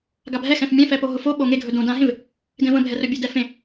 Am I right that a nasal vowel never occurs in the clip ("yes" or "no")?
no